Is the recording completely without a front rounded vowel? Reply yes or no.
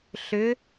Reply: no